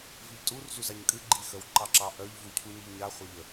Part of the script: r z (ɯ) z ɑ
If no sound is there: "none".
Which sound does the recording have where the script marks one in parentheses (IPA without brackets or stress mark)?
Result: u